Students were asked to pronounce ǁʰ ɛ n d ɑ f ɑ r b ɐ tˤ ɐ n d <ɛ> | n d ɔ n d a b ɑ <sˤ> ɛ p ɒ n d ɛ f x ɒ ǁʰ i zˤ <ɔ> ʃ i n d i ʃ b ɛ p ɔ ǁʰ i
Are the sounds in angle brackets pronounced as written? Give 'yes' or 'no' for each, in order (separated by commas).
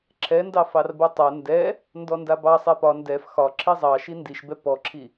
yes, yes, no